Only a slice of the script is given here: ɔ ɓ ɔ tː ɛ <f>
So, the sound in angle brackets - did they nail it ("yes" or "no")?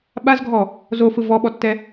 no